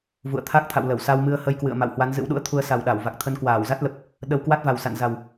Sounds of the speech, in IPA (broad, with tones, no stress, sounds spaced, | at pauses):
v ṵ˧˨ ə̯ t̪ʰ a˦˥ k̚ t̪ʰ a̰˧˨ w l ə˧˩ w s a˧ w m ɨ˧ ə̯ h ə˧ j k w ɨ̰˧˨ ə̯ m a̰˧˨ w h w a˨˦ n z ɨ̰˧˥ w ɗ ṵ˧˥ ə̯ t̪ʰ u˧ ə̯ s a˨˩ w ɗ a˧˩ w v a˨˩ k̚ t̪ʰ ə˧ n k w aː˧˩ w z a˦˥ t̚ l ə˨˩ p̚ | ɗ ə˧ w k w a˦˥ t̚ v a˨˩ w s a̰˧˨ n z a˨˩ w